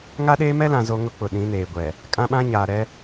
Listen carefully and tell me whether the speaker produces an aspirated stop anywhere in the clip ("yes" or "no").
no